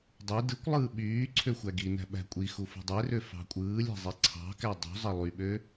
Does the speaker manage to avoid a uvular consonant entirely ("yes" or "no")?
yes